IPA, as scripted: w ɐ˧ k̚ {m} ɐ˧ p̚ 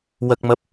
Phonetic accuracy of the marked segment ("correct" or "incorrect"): correct